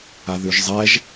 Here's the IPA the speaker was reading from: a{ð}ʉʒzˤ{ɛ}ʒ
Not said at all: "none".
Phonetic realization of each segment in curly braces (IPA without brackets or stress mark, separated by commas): ð, ɛ